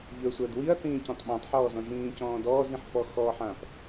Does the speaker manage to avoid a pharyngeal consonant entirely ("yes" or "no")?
no